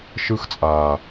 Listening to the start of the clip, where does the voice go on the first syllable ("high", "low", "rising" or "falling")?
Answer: high